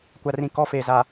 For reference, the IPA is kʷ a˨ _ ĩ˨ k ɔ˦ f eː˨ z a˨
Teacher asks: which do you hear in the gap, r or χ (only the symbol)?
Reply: r